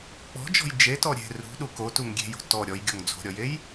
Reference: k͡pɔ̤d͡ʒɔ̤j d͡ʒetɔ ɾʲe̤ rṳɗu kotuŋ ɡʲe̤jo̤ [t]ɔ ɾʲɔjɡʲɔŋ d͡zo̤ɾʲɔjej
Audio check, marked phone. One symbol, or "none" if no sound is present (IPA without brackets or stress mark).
t